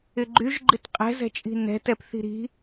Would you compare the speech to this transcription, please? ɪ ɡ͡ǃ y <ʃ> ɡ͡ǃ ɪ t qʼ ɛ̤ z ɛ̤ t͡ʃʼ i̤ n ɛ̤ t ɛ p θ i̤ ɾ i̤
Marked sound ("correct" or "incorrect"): incorrect